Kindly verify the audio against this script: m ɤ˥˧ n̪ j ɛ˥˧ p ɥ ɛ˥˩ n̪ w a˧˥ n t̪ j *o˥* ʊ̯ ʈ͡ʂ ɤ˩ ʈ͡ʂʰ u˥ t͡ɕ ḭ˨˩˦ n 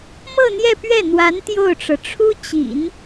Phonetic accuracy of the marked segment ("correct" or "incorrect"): incorrect